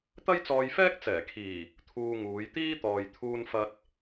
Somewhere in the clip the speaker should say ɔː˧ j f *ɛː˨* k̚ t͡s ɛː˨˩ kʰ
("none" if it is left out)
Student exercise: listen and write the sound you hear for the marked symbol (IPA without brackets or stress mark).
ɛː˥